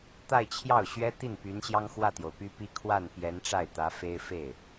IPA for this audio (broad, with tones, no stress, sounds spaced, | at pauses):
t̪ a˥˧ ɪ̯ t͡ɕʰ j ɑ˥˩ ʊ̯ ɕ ɥ ɛ˥ t̪ i˥˩ n p y˧˥ n ɕ j ɑ˥ ŋ x w ä˥˩ t̪ j o˩ ʊ̯ p y˥ p i˥ kʰ w a˥˩ n p j ɛ˧˥ n ʈ͡ʂ a˥˩ ɪ̯ t̪ ä˧˥ f e˥ ɪ̯ f e˥˩ ɪ̯